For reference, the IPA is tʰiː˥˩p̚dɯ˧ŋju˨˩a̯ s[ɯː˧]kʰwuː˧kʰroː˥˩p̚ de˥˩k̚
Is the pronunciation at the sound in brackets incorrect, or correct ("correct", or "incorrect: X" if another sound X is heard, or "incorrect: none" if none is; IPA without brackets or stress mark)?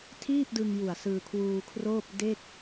correct